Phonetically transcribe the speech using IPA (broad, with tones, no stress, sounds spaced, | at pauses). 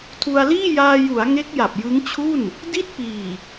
tʰ u˧ a̯ l iː˥˩ j aː˧ j u˩˦ a̯ ŋ e˦˥ k̚ j a˨˩ p̚ j ɯ˦˥ ŋ t͡ɕʰ u˥˩ n | d i˥˩ t̚ p iː˨˩